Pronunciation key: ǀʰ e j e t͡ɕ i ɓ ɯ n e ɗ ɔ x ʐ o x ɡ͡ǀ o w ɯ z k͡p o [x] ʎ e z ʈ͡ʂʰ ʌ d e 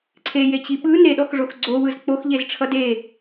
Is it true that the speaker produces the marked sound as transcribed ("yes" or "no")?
yes